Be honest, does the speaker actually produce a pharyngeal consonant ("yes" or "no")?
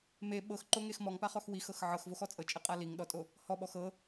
yes